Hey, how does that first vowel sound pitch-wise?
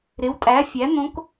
rising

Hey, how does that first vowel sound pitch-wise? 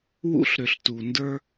high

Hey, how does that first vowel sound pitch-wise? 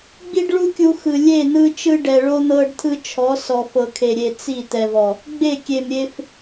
high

